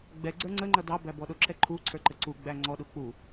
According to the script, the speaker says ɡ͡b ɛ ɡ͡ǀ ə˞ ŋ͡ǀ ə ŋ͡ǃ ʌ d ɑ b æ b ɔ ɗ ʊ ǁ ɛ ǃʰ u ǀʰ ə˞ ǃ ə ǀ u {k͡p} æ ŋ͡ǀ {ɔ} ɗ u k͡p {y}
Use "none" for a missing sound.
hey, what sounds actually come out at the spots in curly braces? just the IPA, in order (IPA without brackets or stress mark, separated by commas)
ɡ͡b, ɔ, u